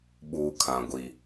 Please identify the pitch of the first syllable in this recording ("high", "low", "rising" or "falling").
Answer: low